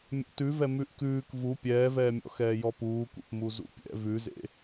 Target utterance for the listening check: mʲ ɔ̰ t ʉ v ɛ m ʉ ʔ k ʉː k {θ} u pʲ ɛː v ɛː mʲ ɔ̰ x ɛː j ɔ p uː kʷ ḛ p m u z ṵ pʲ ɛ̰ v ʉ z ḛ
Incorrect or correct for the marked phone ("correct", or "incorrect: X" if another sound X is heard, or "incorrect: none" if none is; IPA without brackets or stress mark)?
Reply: incorrect: v